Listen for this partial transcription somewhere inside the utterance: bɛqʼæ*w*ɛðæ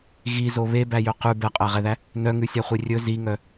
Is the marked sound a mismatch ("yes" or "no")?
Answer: yes